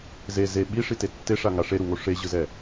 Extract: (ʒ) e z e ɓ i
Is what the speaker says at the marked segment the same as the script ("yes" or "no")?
no